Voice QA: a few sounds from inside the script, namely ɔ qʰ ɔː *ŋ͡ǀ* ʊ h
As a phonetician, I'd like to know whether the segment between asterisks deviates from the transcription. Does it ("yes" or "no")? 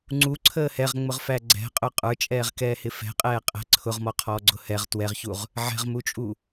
yes